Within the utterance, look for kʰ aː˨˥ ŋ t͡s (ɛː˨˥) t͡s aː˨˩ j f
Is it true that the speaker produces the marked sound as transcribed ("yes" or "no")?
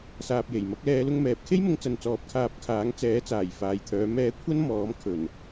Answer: yes